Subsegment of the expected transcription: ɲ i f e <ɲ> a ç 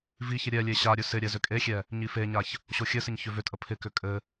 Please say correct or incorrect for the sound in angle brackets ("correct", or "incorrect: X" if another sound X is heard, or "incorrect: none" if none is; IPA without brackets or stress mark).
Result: correct